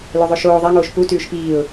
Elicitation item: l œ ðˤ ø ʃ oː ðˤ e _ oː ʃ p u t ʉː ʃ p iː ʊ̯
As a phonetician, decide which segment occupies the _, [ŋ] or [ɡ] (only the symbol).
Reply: ŋ